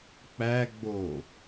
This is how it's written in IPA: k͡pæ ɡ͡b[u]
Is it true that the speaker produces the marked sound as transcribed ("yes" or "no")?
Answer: no